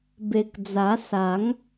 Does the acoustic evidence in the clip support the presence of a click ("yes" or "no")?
no